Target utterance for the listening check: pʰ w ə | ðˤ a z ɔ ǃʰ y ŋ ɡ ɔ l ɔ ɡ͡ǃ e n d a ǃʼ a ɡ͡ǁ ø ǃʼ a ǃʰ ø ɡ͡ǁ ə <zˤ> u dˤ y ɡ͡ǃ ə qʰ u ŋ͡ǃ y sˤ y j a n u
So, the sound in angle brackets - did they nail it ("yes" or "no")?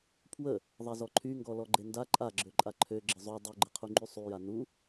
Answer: yes